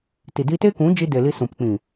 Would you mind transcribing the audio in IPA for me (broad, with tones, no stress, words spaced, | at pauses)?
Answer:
ti˨di˧te˦kũ˨˦ d͡ʒi˧ de˨ li˧sũ˨pk͡pĩ˨